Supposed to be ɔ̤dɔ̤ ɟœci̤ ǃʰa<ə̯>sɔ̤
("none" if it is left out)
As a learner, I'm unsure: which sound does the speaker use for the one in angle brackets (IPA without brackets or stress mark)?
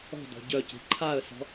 ə̯